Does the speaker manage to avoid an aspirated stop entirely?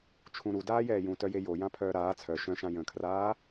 no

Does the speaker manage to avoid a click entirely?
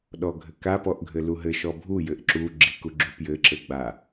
no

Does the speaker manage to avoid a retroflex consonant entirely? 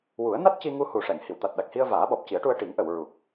no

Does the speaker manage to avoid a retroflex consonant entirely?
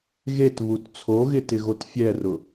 yes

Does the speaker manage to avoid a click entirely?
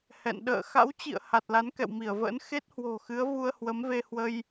yes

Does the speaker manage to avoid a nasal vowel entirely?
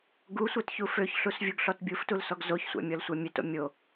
yes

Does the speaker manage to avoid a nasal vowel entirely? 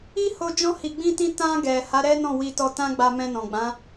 no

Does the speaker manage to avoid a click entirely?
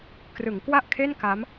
yes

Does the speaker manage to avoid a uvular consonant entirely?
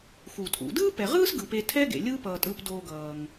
no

